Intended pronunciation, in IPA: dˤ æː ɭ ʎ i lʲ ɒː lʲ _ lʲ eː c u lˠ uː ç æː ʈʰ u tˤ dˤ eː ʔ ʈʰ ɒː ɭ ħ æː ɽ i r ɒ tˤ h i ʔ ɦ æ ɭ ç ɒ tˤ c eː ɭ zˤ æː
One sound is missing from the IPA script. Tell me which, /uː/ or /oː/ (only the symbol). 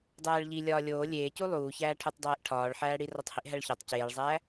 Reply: oː